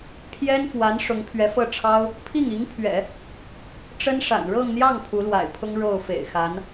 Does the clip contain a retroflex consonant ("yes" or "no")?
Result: yes